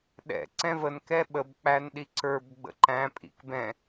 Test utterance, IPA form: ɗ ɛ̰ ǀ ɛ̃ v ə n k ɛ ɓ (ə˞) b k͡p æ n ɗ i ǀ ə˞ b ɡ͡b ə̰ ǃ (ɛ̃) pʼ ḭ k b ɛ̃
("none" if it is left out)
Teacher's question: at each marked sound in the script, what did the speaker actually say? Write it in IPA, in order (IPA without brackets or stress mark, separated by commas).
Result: ə, æ̃